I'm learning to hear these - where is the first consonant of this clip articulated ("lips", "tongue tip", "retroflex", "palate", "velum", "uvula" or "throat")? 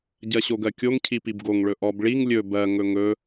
palate